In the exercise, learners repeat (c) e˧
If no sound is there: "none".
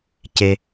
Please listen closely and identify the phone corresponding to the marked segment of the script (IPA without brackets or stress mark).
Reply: c